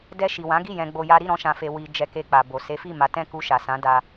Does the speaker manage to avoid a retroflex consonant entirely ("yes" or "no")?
yes